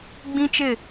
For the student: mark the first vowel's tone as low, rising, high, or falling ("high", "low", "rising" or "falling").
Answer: high